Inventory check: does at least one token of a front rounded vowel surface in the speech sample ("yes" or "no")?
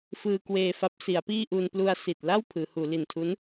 no